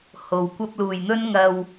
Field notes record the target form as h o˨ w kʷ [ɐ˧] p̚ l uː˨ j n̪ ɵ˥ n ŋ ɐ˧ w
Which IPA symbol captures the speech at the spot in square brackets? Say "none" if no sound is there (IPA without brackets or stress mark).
ɐ˧